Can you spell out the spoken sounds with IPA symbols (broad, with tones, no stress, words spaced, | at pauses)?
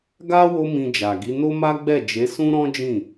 ɡa˦ wo˦mĩ˧d͡ʒa˨ɡi˨˦ no˦ma˦ɡ͡bɛ˦˨ d͡ʒe˨˦sũ˦ ɾɔ̃˦d͡ʒĩ˦˨